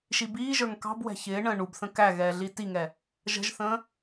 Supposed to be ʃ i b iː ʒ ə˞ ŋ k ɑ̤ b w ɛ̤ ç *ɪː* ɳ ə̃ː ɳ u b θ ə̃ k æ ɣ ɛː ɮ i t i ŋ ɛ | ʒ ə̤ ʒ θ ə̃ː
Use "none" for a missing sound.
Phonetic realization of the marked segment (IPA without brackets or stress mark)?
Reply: ɪː